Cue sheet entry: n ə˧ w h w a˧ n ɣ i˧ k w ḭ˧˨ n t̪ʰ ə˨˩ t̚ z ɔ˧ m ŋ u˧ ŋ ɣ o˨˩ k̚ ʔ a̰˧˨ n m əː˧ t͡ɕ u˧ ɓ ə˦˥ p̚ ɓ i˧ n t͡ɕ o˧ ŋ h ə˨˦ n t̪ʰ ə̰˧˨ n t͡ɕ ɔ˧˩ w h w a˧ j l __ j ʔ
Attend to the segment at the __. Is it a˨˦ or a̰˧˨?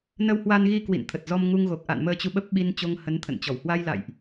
a̰˧˨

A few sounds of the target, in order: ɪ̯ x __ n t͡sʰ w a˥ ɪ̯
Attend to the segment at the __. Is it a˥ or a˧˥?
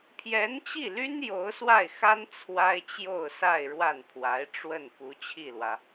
a˥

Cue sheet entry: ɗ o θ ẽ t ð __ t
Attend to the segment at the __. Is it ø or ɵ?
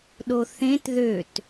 ø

